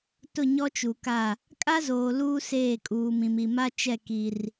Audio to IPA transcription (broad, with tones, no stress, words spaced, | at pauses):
tʊ˦˨ɲɔ˦t͡ʃu˨ka˦˨ | kʼa˦zoː˨ luː˦seː˦˨ kʼuː˨mĩ˨mi˨ ma˦t͡ʃɛ˦˨ ki˦r